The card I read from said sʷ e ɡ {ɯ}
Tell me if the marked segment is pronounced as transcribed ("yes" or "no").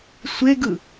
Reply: yes